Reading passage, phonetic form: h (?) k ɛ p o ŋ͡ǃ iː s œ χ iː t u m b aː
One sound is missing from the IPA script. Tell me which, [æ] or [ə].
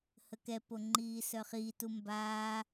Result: ə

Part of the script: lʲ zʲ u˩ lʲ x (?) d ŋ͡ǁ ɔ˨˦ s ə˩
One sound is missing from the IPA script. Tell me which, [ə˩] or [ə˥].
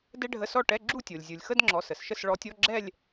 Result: ə˥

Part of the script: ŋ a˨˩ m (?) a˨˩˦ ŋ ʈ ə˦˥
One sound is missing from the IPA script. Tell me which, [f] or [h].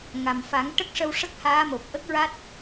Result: f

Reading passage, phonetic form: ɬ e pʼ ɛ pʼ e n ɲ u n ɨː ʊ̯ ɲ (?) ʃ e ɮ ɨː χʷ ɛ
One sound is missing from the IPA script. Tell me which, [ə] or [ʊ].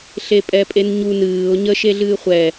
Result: ə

